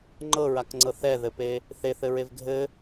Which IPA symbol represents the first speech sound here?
ŋ͡ǃ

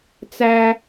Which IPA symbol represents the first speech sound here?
t͡s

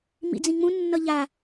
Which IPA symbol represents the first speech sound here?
m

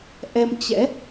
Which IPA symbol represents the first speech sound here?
ʔ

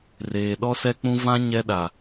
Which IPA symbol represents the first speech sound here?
r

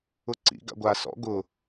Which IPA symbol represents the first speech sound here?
ʊ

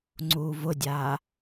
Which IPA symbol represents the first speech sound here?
ŋ͡ǀ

